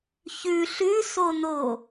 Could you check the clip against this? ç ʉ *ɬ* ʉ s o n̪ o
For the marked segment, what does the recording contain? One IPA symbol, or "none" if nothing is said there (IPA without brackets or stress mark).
ɬ